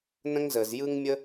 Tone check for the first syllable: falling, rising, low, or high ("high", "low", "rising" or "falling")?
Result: high